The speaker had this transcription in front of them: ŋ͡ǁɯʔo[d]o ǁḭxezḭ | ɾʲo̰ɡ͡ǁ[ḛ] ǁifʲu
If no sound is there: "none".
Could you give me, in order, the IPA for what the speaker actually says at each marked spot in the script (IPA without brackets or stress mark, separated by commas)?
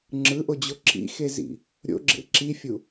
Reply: d͡ʑ, ḛ